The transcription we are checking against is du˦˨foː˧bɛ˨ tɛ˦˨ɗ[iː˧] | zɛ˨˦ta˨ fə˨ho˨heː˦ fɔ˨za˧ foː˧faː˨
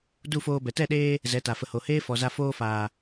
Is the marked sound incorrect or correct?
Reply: incorrect